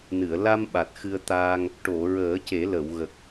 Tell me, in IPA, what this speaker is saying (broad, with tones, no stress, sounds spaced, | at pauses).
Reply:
n ɨ˨˩˨ ə̯ l a˧ m ɓ a˨˩ t̚ x ɨ˧ ə̯ t̪ aː˧ ŋ | ʈ o˨˩˨ ɹ əː˨˩˦ c e˨˩˦ l ə˨˩˨ w ɣ ə˨˩ k̚